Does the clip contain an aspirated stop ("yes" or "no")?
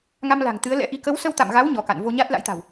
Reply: no